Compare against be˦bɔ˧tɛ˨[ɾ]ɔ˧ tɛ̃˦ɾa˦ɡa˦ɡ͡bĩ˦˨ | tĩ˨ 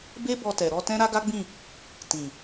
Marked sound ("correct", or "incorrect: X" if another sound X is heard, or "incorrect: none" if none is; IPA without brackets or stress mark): correct